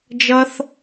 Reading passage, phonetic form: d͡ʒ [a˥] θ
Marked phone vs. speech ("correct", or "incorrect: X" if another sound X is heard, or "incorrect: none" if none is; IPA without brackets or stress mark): incorrect: ʌ˥